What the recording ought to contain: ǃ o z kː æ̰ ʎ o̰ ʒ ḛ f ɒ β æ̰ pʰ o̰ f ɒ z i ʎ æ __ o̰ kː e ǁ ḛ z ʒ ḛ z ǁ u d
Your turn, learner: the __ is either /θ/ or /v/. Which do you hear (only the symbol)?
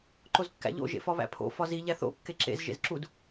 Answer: θ